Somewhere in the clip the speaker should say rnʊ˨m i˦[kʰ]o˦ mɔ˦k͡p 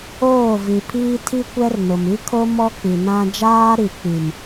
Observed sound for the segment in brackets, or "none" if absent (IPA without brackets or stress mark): kʰ